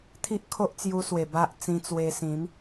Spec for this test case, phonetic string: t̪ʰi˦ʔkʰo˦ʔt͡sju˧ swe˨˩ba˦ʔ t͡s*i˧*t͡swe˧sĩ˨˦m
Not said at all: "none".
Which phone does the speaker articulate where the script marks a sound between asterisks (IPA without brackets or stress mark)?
ĩ˧